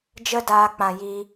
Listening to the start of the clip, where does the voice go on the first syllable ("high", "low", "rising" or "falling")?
high